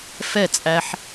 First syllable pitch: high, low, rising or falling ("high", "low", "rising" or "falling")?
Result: falling